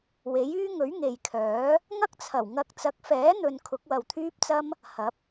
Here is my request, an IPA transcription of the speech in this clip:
we˨˥jyː˥ ŋɵ˨˥ɥŋe˨jkʰœː˨˥ | ŋɐ˥k̚t͡sʰɐ˨˩wŋɐ˧k̚ t͡sɐ˨˥k̚fɛː˨˥n̪ɵ˨n kʰʊ˨˥k̚wɐ˨wt̪ʰyː˥p̚t͡sɐ˥m | hɐ˨˥p̚

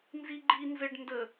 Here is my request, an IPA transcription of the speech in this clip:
nziɡ͡ǃi nzɘɖ ndə

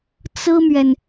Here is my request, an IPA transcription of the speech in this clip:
t͡sɹ̩˥mɥɛ˨n

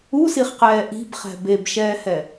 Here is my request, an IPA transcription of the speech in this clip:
usiχqɛː ʔi̤bχɛ̤ bebʃɛːhɛ

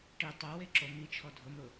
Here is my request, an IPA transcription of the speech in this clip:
ʈi tˤowe ǁomit͡ʃʰɔ dʱʊmɾʊ

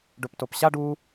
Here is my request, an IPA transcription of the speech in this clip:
ɖɵptopɕaɖ u

